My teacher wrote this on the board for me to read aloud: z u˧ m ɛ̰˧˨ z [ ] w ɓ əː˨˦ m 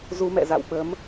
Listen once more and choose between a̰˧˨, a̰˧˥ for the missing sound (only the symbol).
a̰˧˨